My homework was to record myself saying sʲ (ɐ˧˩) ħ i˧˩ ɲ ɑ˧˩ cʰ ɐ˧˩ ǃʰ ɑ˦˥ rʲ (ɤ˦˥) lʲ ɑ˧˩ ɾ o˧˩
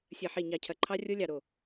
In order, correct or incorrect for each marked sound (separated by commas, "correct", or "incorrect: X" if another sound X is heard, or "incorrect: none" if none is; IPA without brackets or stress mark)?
correct, correct